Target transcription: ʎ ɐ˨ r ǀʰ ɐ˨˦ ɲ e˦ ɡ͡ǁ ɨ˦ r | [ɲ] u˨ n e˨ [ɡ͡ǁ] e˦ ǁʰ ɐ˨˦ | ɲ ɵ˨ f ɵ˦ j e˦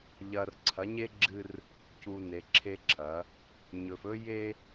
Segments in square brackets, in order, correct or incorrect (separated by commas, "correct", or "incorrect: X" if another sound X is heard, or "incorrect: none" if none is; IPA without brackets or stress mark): incorrect: c, incorrect: ǁʰ